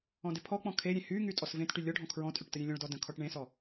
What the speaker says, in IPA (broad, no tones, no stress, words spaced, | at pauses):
ɔ̃dɪpʰɔk͡pɔ̃ kʰeɾʲẽ hyŋy tʼɔsvẽtʈy lʲɔɖʱɔ̃ kʰɹɔ̃tʼyʈ təɾʲẽlʲɔ̃ɭdɔ də̃ kʰɔʈɳẽsɔ